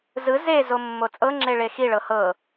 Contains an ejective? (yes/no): yes